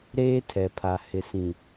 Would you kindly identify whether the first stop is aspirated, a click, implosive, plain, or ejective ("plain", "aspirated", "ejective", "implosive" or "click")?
aspirated